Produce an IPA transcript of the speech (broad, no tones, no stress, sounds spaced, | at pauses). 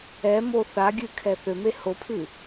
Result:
ɛ m o θ a ɡʲ ɨ kʰ ɛ θ ø m e h o pʰ ɨ